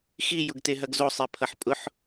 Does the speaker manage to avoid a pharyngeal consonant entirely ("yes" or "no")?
no